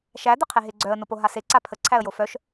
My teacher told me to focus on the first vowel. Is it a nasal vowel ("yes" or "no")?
no